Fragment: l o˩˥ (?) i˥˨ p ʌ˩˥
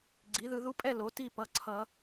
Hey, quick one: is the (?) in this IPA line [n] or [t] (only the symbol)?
t